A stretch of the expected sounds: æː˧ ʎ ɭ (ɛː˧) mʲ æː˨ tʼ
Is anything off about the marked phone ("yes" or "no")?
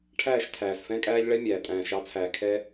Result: yes